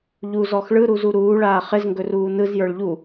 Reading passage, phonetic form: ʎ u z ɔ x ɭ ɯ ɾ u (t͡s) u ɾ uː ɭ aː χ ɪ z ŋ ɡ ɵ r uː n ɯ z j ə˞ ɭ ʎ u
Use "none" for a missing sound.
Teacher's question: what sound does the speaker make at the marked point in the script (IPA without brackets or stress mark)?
z